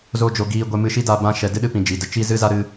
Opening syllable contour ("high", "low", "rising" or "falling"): high